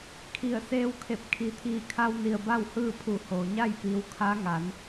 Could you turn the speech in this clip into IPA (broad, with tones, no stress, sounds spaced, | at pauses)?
kʰ i˧˩ ə̯ s eː˧ w kʰ e˧˩ p̚ kʰ i˩˧ t̪ʰ iː˧˩ kʰ a˧ w n i˩ ə̯ b a˥˨ w h ɯː˥˨ pʰ u˧˩ h oː˩ ɲ a˥˨ j p iː˩ w kʰ a˧˥ ŋ a˩˧ n